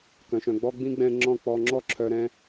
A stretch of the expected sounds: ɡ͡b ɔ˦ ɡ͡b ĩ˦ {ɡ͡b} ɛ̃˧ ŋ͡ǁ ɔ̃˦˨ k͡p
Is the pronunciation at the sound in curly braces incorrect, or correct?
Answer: correct